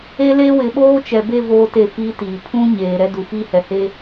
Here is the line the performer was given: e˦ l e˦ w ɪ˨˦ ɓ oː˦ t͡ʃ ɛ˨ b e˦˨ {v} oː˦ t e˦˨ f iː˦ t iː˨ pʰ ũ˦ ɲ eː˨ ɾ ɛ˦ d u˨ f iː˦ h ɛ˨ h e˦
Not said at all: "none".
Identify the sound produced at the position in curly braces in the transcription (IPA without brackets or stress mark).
v